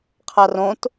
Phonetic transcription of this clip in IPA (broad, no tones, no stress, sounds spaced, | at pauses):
qʰ a r õ t